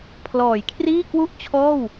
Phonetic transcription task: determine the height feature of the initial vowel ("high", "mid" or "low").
mid